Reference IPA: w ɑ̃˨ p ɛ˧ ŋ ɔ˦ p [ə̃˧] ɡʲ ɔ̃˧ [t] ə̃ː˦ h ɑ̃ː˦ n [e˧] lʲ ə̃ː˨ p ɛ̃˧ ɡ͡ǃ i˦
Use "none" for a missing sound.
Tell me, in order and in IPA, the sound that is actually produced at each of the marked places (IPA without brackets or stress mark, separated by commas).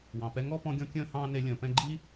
ɔ̃˧, kʲ, e˧